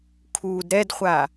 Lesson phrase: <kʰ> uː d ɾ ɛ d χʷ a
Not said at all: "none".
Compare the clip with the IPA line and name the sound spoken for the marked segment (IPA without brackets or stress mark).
kʰ